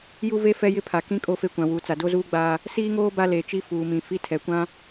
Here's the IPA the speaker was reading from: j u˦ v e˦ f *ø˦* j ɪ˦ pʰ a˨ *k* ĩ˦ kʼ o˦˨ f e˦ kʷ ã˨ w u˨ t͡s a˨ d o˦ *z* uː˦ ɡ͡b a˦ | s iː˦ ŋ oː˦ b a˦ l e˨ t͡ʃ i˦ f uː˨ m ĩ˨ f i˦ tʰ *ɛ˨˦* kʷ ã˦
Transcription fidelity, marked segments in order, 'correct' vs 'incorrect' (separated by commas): incorrect, correct, correct, incorrect